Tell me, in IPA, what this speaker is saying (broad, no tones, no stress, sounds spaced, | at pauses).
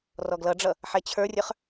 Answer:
r ɔ ɡ l ʌ ɖ͡ʐ ʌ | ħ ɛ t͡ɕʰ ə˞ rʲ ə˞ χ